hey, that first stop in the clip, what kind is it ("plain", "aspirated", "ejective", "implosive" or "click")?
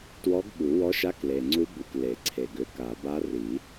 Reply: plain